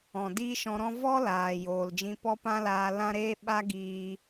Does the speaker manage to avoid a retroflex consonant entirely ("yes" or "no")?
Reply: yes